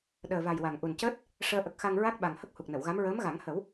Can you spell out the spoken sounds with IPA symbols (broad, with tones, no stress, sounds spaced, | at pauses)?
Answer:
ɗ əː˨˩ v a˨˩ j w a˨˩ ŋ ʔ u˨˩ n c əː˦˥ t̚ | ʂ əː˧ ʔ ə˨˩ k̚ x a˧ ŋ ɹ a˦˥ k̚ ɓ a˨˩ ŋ h ə˦˥ k̚ h u˨˩ k̚ n ə˨˩˨ w ɣ a˧˥ m ɹ əː˧˥ m ɣ a˨˩˦ ŋ h ə˨˩˦ w